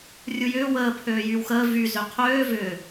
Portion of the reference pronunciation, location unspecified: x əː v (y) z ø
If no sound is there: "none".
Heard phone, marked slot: y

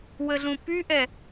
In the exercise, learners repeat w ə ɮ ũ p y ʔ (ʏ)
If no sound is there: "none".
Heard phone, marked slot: ɛ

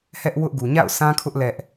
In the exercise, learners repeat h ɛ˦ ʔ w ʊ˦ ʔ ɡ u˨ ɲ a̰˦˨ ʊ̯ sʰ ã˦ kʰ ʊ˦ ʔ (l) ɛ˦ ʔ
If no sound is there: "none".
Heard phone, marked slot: l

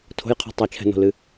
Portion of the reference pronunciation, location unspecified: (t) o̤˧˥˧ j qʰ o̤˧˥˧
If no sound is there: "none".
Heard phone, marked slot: tʰ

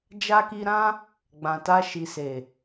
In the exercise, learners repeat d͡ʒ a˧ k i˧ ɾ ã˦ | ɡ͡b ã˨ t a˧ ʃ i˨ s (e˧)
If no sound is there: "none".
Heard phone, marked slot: e˨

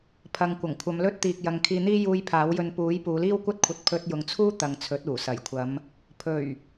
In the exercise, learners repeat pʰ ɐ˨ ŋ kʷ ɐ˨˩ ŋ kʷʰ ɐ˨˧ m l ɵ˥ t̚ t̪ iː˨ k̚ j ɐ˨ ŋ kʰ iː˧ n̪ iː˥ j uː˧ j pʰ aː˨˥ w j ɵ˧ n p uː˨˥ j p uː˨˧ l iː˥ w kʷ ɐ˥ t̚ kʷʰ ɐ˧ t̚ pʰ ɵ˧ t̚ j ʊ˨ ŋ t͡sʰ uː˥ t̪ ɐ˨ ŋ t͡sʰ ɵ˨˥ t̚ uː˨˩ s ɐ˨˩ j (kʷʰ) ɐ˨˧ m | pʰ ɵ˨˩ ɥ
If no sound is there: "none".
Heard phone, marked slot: kʷʰ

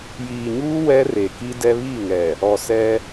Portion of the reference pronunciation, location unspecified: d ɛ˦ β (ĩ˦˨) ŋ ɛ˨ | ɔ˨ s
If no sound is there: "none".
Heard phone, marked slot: i˦˨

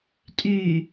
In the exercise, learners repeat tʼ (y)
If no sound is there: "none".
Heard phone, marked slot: y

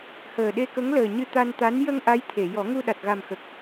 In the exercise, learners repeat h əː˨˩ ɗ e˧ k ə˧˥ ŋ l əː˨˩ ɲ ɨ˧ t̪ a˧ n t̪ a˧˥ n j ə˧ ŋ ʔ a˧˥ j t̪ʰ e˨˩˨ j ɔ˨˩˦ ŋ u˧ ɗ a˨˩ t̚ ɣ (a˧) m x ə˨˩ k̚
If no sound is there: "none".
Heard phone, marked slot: a˨˩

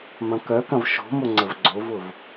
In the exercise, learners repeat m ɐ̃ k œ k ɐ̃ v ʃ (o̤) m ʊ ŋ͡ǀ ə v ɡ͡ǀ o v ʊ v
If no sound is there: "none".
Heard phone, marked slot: o̤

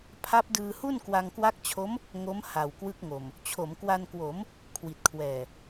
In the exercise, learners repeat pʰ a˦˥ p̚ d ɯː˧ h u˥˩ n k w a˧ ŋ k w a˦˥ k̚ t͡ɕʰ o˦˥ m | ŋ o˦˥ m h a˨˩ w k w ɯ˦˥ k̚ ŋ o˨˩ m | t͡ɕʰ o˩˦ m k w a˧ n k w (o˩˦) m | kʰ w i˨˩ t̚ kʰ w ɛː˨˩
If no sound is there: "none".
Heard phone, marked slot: o˩˦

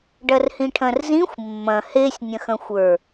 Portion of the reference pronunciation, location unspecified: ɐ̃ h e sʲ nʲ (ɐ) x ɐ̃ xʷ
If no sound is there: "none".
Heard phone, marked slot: ɐ̃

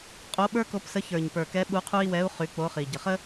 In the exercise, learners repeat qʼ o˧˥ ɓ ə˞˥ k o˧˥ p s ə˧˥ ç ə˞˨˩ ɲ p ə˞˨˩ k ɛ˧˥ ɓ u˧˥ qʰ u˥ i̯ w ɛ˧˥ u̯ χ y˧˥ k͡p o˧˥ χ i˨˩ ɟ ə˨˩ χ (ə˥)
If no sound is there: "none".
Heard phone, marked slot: ə˥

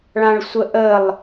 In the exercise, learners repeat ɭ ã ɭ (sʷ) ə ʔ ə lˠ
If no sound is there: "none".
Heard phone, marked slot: sʷ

